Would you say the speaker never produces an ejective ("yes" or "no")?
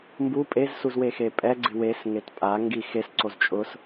no